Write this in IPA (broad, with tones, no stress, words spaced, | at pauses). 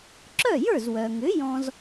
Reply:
ǁœ˥˩jə˞˥˩zwœ˩ŋʏ˩˥ jɔ̃˥z